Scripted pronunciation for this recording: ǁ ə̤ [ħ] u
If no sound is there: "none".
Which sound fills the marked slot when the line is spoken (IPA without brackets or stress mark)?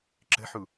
ħ